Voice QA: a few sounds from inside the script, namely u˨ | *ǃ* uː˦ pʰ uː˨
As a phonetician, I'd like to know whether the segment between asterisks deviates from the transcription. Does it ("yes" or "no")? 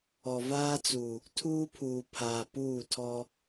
yes